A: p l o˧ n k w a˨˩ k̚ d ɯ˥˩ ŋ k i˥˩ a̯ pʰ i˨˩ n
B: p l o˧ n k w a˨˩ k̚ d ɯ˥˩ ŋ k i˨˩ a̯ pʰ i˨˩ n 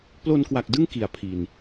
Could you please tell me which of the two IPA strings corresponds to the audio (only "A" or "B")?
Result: B